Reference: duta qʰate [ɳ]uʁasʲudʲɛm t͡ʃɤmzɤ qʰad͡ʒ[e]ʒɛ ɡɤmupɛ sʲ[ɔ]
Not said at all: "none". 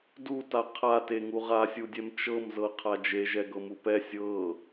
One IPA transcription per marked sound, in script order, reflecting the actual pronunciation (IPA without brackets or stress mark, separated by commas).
ŋ, e, ɤ